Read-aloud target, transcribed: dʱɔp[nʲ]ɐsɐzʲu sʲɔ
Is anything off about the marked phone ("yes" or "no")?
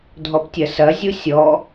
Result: yes